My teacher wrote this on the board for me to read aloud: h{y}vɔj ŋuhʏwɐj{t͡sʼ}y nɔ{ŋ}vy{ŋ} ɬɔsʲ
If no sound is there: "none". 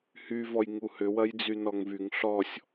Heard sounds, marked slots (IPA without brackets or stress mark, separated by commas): y, d͡z, ŋ, ŋ